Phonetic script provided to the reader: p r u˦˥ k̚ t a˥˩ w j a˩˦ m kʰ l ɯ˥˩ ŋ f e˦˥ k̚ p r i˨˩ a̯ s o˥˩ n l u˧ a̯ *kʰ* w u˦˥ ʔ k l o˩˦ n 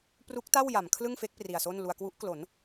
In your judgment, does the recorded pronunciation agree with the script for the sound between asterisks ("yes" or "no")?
no